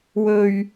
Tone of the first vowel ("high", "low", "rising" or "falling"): low